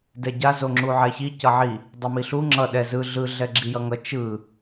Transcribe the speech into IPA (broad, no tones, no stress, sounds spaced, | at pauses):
d ɛ ɟ a z o ŋ͡ǁ u ʕ ɛ ç i c ʌ ʕ i | dˤ i m i ɬ u ŋ͡ǁ ʌ ɗ ɛ z ɯ ɮ ɯ ɮ ɛ ɡ͡ǁ i j ʌ ŋ ʌ t͡ʃ ɯ